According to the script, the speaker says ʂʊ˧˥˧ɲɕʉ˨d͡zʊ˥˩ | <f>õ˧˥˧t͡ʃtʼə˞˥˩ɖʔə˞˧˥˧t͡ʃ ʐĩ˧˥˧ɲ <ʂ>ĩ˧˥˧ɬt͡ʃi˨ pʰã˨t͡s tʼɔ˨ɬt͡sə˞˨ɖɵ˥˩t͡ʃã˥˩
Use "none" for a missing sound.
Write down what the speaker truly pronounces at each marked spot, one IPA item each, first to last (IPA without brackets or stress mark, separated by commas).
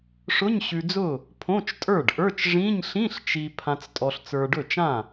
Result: pʰ, ɬ